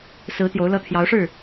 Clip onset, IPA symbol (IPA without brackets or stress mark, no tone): s